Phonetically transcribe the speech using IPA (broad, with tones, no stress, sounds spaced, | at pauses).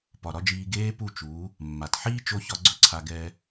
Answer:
p ɒ˨ ɾ ɒ˦ d͡ʒ iː˧ ɡ eː˦ p u˦˨ t͡ʃ uː˨˦ | mː a˨ t ħ iː˦ t͡ʃ o˧ ç ɒ˧ ɡ͡ǀ ɵ˦ ǀʰ a˧ ɡ ɛː˧